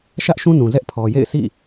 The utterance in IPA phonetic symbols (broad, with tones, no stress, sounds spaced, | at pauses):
ʃ ä˦ ʔ ʃ ũ˦ n ũ˨ z ɛ˦ ʔ pʰ ɔ˨ j ḛ˦˨ ɪ̯ s ḭ˦˨